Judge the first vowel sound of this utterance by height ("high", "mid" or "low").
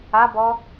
low